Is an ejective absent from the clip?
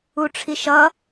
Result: yes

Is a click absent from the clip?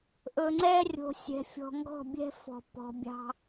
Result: no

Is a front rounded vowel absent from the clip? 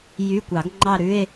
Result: no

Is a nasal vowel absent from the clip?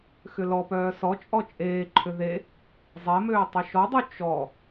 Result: yes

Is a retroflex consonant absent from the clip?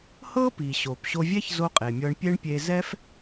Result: no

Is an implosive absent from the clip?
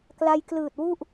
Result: yes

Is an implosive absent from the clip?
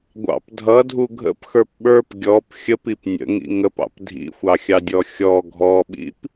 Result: no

